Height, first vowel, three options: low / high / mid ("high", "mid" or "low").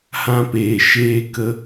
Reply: low